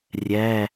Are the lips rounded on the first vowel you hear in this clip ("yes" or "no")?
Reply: no